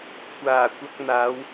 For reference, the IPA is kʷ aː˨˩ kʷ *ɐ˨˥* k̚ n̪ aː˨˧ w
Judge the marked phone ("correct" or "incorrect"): incorrect